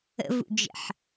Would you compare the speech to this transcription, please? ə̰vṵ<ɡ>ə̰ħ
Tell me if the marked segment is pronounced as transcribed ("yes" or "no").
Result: no